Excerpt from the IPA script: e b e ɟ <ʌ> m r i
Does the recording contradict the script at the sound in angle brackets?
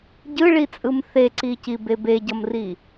no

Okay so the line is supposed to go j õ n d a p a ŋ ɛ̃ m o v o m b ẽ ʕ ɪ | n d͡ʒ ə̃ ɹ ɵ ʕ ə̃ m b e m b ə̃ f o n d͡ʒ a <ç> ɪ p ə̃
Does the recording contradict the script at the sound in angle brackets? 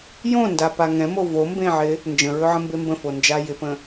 yes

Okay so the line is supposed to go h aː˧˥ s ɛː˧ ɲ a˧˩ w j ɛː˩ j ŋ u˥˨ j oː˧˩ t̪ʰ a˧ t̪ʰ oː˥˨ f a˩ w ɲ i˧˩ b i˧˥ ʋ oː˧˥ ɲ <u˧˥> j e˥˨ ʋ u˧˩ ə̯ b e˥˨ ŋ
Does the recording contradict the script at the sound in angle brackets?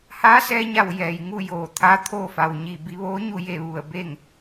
yes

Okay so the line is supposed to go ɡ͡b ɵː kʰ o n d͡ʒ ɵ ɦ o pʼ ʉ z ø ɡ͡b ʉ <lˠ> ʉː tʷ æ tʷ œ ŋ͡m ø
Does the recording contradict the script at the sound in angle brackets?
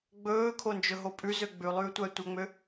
no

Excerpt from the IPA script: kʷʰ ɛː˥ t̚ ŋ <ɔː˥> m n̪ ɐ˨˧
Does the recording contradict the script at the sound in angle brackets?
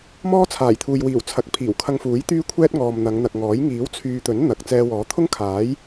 yes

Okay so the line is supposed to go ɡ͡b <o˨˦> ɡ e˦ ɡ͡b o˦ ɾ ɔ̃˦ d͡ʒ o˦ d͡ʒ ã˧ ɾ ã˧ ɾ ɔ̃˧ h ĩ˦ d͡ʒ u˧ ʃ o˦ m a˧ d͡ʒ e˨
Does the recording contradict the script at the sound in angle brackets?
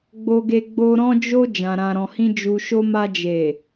yes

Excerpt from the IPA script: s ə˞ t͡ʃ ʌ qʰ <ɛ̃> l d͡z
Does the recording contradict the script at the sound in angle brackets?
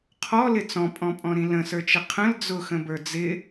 yes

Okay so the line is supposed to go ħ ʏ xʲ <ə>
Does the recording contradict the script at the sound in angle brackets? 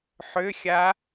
yes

